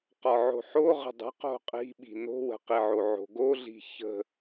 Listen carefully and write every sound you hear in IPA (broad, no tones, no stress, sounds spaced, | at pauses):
q ɒ ʕ o̤ ħ o ʁ ə̤ dˤ ə̤ q o̤ qʼ i̤ ɓ i̤ n o̤ w ə̤ q i ʕ o ʕ o̤ ɡ o ɮ i̤ ç ə̤